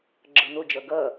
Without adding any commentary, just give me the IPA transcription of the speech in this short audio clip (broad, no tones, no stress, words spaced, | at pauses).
ɡ͡ǁɤn̪od͡ʒʌ ɡʌ